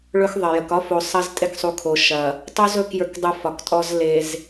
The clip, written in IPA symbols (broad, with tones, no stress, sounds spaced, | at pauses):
ɭ ɵ˦ x ðˤ ɐ˨ j ə˨ k ɒ˦ f o˨ sˤ ɐ˦ z tʼ e˦ k sˤ u˨ kʰ o˨ ʃ ɐ˨ | tˤ u˦ z ɵ˦˨ k j ə˞˦ k dˤ u˦ f ɒ˨ k tʼ ɔ˦ z l e˨ z